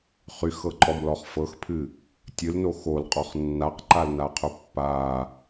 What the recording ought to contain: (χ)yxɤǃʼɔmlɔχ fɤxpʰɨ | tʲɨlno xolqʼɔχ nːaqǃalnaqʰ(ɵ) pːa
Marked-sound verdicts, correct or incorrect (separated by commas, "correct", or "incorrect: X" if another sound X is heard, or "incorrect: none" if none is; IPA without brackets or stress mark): correct, correct